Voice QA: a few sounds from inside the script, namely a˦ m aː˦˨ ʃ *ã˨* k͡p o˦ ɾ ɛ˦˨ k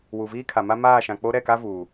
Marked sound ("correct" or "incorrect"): correct